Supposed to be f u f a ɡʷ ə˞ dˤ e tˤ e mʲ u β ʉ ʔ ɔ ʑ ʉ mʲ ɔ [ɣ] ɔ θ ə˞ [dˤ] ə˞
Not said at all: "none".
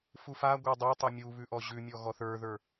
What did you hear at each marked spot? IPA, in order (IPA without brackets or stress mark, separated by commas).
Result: ɣ, ð